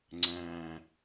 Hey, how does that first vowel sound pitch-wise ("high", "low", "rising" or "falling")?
low